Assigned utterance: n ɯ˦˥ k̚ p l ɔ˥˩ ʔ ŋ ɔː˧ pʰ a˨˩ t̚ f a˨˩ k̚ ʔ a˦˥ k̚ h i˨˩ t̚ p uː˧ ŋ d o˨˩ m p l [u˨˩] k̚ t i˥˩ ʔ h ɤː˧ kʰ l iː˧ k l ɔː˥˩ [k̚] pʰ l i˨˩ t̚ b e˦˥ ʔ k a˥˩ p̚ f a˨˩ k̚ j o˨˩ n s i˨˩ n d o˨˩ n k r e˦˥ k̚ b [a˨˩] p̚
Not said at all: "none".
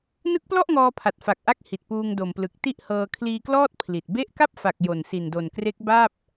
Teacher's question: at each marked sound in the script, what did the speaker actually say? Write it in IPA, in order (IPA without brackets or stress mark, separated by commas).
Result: ɯ˨˩, t̚, a˥˩